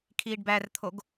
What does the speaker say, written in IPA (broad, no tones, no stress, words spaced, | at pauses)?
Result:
kʰiːɖbært̪ʰoɡ